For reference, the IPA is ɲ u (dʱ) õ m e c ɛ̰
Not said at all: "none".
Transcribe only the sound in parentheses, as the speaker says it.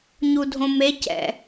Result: dʱ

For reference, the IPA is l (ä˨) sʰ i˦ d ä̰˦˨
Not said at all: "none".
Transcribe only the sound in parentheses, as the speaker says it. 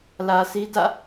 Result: ä˨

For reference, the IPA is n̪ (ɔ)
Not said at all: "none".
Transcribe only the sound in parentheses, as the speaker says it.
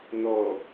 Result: ɔ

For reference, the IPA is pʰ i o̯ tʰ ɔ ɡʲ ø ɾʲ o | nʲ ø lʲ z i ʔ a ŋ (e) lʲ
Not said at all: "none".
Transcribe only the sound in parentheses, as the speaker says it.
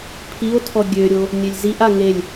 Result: e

